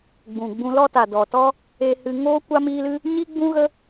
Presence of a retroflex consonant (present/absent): absent